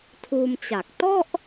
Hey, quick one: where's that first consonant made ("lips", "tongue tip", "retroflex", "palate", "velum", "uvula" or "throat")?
tongue tip